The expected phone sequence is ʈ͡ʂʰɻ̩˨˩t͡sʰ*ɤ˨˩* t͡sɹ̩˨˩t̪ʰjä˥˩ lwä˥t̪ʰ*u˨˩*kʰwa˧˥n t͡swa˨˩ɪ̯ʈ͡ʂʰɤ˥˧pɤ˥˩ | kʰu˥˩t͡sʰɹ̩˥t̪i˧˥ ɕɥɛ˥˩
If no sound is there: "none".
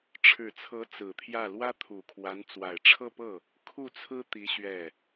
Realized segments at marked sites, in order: ɤ˧˥, u˨˩

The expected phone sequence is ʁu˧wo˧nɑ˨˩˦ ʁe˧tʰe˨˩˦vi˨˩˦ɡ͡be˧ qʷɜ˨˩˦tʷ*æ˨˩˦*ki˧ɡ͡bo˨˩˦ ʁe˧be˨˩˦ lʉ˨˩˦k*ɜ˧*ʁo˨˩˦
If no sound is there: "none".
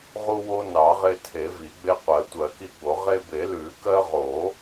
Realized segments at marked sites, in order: ɜ˨˩˦, ɜ˧

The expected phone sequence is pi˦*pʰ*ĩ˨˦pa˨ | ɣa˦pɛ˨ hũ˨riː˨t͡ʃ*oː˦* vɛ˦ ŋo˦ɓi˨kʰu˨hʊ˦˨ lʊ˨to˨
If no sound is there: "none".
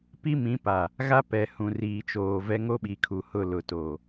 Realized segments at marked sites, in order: m, oː˨

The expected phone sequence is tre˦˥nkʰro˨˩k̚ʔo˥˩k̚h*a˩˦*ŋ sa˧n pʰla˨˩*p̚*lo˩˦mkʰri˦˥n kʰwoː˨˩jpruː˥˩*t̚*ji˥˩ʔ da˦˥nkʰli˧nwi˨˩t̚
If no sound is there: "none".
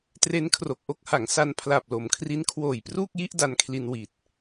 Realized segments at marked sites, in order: a˩˦, p̚, k̚

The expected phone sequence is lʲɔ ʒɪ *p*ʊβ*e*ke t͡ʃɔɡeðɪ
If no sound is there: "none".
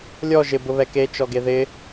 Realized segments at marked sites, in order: b, ɛ

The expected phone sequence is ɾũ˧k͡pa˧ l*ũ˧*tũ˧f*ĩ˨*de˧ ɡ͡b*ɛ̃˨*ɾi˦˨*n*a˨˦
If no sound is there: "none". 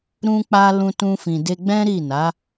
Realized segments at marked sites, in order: ũ˧, ĩ˨, ɛ̃˦, n

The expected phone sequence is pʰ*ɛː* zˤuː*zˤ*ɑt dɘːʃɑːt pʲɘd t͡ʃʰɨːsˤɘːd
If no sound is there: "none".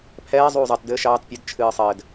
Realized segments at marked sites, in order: ɛː, zˤ

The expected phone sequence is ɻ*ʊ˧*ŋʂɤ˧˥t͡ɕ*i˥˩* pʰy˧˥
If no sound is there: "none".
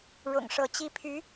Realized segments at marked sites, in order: ʊ̰˨˩, i˥˩

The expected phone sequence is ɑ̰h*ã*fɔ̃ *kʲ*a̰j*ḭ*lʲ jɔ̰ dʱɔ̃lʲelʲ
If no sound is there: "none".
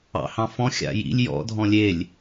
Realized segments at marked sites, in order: ɑ̃, xʲ, ḭ

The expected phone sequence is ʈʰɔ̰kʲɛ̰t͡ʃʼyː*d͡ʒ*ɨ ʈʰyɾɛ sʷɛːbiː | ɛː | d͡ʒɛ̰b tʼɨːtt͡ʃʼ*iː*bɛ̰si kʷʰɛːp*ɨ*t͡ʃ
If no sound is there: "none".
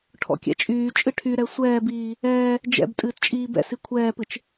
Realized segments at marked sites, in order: t͡ʃʼ, iː, ɨ

